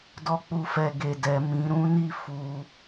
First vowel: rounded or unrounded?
rounded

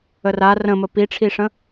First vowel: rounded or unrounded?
unrounded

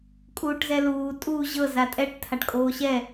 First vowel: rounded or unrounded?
rounded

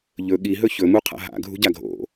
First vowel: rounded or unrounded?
rounded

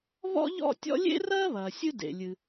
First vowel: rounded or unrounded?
rounded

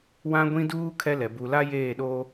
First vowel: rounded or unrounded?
unrounded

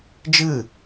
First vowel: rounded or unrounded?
unrounded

